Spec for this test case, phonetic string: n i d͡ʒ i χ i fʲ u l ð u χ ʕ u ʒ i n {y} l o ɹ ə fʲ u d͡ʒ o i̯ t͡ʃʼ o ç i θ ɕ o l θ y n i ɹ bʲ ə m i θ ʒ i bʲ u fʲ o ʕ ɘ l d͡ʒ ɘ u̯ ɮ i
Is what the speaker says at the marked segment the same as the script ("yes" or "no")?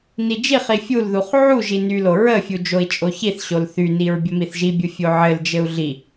yes